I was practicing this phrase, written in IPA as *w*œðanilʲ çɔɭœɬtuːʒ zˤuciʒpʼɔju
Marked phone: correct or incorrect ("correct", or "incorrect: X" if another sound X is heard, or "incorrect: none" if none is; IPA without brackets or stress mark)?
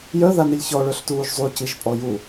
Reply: incorrect: j